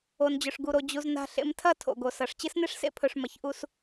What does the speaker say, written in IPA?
o˨ n d͡ʑ ɵ˨ ʂ ɡ u˨ ɾ o˨ d͡ʑ u˨ z n a̤˨ ɬ ḛ˨ m tʰ ɐ˦˨ tʰ o̰˨ ɡ o˨ s ɐ˨ ʂ t͡ɕ ɨ˦ s n e˦ ʂ s ḛ˦ pʰ ɵ˨ ʂ m ɐ˨ ç ʔ u˦ s

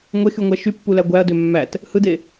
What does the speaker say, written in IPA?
ŋʷ e x y ŋʷ æ ʃ y pː u l æ ɡʷ æ ɐ̯ d ø mː æ t | h ɯ d e

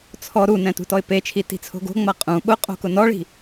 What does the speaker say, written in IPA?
t͡sʰ ɔ ɾ u n ɛ̃ t ṳ t ɔ ɪ̯ p e t͡ʃʰ i t i̤ t͡sʰ o̤ ɡ o̤ ŋ͡m a qʼ ũ ɓ ʊ qʼ o̤ k ʊ n ɔ ɭ i̤

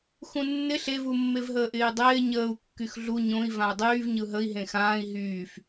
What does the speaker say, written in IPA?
x ũ nː ɪ ɬ e v u mː e v ɦ əː ʔ ɪː dˤ ɪː ɲ əː u̯ kː y x ɮ u ɲ õ i̯ v ã u̯ dˤ yː v ɲ ɯ ɦ ə i̯ ɦ ẽ x ãː i̯ ɦ yː f

